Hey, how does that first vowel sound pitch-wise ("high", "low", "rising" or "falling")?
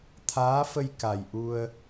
rising